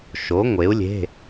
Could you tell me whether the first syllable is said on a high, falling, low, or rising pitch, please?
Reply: rising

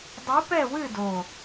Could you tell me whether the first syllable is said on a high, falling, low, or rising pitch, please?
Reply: rising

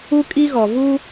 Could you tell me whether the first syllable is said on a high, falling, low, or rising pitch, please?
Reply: high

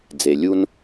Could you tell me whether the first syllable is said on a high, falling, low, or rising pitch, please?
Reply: low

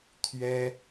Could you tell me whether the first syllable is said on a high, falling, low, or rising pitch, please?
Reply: high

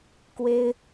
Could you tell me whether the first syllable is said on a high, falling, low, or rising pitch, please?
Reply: high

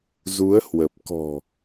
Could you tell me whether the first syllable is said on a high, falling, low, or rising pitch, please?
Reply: rising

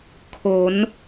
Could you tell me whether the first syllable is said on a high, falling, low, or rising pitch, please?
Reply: rising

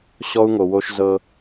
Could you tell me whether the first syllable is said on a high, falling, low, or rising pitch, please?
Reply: high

